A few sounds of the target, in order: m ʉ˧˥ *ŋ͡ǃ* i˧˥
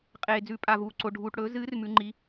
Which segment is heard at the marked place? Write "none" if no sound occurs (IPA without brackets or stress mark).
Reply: ŋ͡ǃ